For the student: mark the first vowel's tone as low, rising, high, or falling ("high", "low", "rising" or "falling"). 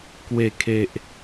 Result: low